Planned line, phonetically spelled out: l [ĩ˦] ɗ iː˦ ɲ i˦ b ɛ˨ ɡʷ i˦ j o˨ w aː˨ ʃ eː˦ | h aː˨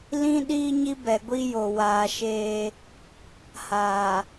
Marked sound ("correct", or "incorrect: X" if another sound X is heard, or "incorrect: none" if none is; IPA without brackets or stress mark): correct